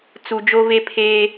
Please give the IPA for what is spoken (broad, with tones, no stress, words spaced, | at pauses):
t͡su˨ d͡ʒo˦ve˦ pʰeː˦